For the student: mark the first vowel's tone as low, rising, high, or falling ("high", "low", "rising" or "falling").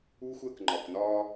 high